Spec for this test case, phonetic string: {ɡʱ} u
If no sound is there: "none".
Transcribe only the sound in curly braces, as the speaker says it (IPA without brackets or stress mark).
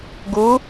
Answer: ɡ